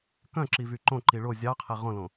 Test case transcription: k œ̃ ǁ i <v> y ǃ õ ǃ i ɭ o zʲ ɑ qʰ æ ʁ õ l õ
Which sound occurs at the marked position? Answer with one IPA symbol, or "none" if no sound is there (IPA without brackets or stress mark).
v